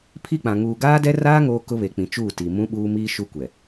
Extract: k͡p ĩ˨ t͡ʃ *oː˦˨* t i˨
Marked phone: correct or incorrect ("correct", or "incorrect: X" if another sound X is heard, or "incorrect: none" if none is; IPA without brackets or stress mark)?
incorrect: uː˦˨